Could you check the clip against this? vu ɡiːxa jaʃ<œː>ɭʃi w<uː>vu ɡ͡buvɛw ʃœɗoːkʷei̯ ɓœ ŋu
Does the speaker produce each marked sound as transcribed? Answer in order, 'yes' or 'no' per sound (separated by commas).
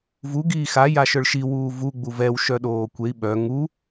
no, yes